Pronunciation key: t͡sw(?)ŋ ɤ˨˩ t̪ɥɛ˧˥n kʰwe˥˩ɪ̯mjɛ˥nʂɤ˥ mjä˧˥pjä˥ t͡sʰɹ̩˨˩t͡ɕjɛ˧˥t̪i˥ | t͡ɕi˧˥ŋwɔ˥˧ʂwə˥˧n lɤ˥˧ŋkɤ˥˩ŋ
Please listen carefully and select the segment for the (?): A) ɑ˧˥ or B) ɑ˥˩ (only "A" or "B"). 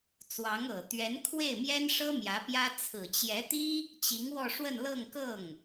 A